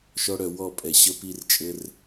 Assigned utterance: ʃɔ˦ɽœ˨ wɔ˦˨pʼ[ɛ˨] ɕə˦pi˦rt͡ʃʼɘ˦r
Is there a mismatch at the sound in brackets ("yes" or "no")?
no